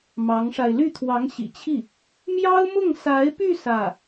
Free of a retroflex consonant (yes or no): no